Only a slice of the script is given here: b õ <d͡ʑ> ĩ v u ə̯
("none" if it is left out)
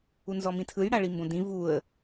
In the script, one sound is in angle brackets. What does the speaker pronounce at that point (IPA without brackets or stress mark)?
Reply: d